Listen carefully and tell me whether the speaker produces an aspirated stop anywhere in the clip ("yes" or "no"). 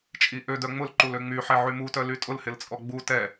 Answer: no